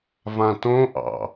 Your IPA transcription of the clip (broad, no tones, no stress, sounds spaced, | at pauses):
v ã t õ ʔ ɑ̰